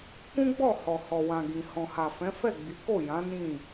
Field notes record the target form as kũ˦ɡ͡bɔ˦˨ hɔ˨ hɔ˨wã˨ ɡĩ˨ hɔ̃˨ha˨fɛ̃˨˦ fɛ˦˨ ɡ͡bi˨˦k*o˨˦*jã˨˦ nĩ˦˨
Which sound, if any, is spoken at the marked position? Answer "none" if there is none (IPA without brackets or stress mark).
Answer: o˦˨